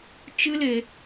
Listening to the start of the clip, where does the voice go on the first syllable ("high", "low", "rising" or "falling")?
high